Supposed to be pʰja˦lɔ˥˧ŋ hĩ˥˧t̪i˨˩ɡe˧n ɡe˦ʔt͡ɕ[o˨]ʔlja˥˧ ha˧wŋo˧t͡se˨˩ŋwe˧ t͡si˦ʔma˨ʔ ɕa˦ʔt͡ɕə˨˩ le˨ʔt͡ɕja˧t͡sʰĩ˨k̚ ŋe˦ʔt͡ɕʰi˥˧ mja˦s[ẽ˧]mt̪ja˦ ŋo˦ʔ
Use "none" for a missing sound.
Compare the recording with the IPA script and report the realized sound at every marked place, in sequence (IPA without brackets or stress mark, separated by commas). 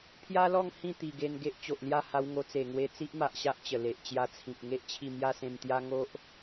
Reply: o˨, ẽ˧